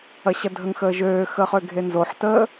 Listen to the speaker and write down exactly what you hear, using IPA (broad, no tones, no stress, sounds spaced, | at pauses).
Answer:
ɐ ɕ ɐ dʱ ə ŋ x əː ʒ øː x əː χ ø ɡʱ e n z o ħ t əː